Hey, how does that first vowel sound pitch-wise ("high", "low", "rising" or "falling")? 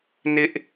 high